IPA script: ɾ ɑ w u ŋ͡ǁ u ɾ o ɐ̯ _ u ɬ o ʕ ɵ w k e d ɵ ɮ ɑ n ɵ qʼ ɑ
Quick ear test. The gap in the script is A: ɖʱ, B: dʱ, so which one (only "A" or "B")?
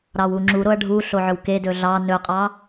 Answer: A